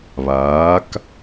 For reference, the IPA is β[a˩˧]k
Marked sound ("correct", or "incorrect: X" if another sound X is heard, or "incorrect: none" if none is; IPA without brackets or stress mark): incorrect: aː˩˧